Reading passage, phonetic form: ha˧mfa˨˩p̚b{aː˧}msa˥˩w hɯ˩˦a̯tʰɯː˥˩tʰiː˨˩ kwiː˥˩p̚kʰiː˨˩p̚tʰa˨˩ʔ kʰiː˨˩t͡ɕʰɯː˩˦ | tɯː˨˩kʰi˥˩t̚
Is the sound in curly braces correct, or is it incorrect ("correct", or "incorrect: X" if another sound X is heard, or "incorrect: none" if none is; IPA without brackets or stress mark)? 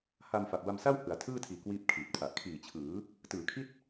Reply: incorrect: a˧